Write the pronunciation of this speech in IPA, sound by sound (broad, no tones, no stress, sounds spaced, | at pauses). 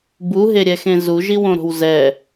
b u ɦ e ɾʲ ɛ x ẽ z u ʒ i w õ ɾ o̤ w z ɛ